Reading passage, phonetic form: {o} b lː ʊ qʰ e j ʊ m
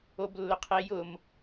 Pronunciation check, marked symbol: correct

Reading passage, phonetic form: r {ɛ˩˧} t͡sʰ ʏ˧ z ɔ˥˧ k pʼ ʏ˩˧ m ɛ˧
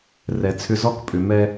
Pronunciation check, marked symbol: correct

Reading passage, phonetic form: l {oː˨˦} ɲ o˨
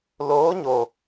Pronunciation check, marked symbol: correct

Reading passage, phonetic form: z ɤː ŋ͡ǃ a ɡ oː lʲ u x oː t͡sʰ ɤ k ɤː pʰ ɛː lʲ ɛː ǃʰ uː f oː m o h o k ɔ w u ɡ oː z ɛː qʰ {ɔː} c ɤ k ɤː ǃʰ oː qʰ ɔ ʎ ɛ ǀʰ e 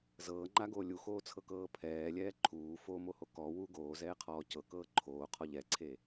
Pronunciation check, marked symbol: correct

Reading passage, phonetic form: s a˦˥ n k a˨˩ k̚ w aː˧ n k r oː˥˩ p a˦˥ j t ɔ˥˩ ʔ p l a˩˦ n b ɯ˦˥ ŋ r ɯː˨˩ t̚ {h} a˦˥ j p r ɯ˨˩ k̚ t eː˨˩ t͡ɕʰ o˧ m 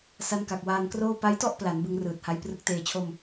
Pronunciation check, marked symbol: correct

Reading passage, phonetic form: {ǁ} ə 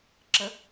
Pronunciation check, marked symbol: correct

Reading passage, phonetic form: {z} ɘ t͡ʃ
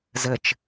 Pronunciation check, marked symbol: correct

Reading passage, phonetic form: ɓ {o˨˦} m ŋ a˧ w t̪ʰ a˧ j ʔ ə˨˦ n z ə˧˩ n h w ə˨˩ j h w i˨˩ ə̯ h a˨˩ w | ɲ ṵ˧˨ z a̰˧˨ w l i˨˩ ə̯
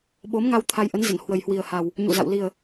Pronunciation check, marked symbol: correct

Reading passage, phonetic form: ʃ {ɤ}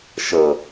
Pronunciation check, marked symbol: correct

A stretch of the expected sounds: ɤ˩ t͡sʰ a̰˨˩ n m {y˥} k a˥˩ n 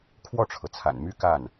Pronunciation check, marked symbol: correct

